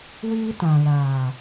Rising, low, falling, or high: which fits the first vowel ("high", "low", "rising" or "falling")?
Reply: high